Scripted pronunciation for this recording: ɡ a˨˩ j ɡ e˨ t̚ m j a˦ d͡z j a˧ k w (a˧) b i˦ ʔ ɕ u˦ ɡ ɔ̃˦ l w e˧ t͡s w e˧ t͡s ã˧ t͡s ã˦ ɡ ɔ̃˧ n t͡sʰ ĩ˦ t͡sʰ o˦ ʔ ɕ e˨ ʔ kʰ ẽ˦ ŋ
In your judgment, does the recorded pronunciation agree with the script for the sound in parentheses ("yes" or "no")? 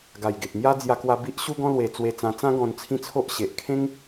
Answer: yes